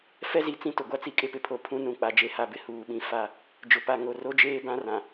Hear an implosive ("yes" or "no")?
yes